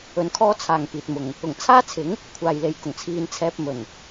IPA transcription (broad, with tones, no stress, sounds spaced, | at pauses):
ɵ˧ n kʰ ɔː˥ t͡sʰ aː˨ ŋ p iː˨ t̚ m ʊ˨ ŋ | ʊ˨˩ ŋ t͡sʰ aː˥ t͡sʰ ɪ˨˥ ŋ | kʷʰ aː˨ j l e˨ j k ʊ˨˩ ŋ t͡sʰ iː˨ n t͡sʰ ɛː˧ p̚ m ɵ˨˩ n